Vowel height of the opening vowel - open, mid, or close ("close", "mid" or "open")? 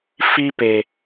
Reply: close